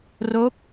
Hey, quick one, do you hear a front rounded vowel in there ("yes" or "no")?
no